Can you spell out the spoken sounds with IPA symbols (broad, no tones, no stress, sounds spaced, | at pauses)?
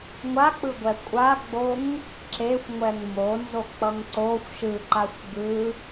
ŋʷ a k͡p ɯ ɡʷ ɛ kʷʼ a ɡ͡b o ŋ | ǁ e xʷ ŋʷ ɛ ŋ m o n z o k͡p ʌ ŋ ǀ o xʷ ʃ ɯ ǃ a xʷ ɡ ɯ